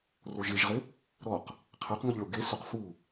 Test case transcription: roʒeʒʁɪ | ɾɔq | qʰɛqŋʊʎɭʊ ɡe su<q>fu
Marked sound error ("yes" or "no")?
no